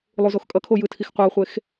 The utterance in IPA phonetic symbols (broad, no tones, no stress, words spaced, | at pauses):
lˠuzoxkʼʌkʰo jɯtʰixqʷɯo̯χʷex